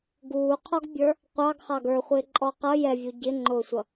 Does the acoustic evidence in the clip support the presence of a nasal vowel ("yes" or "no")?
no